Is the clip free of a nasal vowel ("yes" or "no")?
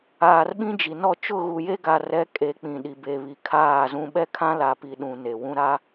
no